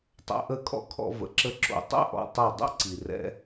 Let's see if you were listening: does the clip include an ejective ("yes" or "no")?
yes